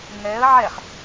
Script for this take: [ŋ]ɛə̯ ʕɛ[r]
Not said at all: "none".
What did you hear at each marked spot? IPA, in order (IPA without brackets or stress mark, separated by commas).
ŋ, χ